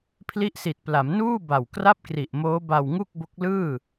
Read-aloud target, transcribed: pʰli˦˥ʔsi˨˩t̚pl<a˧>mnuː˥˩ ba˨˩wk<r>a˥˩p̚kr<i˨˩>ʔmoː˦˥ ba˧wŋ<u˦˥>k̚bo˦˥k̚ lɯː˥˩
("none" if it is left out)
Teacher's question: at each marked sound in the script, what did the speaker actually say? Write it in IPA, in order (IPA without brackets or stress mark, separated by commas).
a˩˦, r, i˨˩, u˥˩